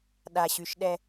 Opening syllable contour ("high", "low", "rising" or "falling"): low